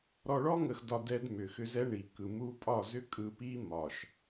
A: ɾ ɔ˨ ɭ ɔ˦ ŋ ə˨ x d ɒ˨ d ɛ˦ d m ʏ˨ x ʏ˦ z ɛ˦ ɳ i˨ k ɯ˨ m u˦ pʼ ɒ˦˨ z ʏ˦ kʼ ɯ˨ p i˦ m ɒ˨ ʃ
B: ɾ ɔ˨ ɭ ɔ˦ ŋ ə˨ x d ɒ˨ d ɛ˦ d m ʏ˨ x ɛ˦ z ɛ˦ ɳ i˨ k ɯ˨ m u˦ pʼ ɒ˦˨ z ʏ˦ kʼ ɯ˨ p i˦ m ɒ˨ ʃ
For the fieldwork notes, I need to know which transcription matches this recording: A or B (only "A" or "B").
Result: A